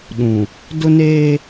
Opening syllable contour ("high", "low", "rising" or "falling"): low